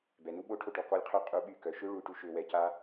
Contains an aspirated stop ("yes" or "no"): yes